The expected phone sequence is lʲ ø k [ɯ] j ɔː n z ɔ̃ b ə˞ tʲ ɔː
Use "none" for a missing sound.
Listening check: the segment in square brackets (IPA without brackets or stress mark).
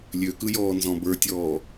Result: ɯ